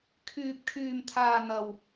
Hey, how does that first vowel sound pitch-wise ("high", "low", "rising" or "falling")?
low